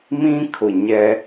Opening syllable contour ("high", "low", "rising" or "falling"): high